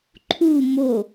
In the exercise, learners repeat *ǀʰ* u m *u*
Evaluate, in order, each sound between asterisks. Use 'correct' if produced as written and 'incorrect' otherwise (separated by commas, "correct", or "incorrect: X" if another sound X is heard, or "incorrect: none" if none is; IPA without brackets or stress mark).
incorrect: ǃʰ, incorrect: o